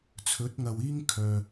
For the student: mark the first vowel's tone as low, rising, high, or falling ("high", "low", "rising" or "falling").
rising